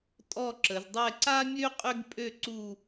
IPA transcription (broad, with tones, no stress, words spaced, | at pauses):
tʼɔ˥˧ǁə˩˧zdˤɛ˥˧ ǀa˥mʲø˥ qʼʏ˥ɡpʼø˥˧ ǀu˥˧